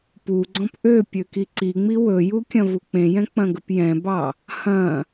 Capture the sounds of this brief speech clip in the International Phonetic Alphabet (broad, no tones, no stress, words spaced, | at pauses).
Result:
puɡ͡ǀɔ̃p ʔø pʲøkiǀiŋ͡mi wɵju kʲɐ̃vuk͡pẽjɛ̃ k͡pɐ̃ɡəpjɛ̃bɑ | hɐ̃